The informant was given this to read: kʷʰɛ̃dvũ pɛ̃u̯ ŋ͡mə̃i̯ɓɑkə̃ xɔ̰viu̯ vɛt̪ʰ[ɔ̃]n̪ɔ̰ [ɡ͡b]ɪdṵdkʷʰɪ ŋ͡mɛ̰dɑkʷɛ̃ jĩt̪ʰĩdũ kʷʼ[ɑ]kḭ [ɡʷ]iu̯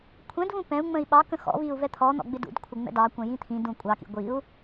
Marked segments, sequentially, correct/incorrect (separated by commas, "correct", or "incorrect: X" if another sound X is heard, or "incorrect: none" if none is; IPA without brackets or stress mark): incorrect: ɔ, correct, correct, correct